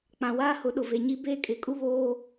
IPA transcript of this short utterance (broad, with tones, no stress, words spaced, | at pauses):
k͡pã˨waː˦hʊ˨˦ ɗʊ˨ve˨ ɲi˦ beː˦kʼɪ˨˦kʼu˦ βoː˦